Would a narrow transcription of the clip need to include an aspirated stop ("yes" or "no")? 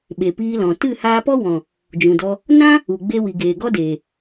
no